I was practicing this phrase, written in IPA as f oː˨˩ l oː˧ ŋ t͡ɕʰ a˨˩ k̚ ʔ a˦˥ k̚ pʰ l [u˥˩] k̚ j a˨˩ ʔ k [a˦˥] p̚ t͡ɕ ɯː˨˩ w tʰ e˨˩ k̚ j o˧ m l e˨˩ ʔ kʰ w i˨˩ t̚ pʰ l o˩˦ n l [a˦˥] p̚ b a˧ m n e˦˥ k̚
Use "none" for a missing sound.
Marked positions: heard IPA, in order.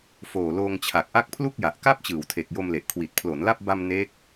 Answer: u˥˩, a˥˩, a˥˩

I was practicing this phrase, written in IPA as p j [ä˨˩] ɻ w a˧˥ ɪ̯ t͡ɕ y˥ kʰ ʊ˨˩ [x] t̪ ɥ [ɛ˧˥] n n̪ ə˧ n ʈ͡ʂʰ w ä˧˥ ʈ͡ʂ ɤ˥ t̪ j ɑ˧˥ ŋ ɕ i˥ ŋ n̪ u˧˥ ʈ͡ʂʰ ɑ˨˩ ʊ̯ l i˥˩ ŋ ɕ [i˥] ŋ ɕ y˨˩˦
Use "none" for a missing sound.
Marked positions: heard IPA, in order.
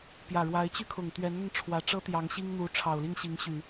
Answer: ä˨˩, ŋ, ɛ˧˥, i˧˥

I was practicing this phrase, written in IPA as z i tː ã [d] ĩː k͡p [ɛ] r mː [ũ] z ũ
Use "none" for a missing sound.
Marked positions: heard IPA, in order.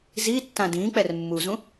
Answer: d, ɛ, u

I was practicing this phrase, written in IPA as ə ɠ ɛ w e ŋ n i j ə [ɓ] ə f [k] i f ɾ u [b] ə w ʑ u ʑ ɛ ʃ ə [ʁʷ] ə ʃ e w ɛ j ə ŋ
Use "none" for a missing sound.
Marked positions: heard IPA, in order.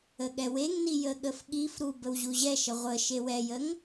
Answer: ɠ, ɠ, b, ʁʷ

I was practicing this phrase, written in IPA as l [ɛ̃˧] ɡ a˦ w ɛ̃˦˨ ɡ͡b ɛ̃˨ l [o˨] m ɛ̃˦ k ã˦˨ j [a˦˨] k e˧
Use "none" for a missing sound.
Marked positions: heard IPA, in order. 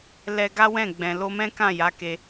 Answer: ɛ˧, o˧, a˨˦

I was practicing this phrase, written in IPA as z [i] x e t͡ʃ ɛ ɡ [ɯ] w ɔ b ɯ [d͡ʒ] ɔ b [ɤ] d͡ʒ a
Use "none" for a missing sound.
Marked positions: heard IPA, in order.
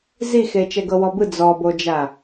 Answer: i, ɤ, d͡z, o

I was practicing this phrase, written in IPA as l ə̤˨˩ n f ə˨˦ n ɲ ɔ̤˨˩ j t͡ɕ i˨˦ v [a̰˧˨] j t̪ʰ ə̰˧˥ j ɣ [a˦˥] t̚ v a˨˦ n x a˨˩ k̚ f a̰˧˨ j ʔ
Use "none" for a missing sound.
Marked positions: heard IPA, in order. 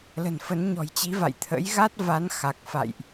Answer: a̰˧˨, a˦˥

